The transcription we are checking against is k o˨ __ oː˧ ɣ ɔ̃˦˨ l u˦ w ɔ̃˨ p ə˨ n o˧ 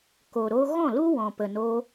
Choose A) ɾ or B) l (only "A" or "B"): A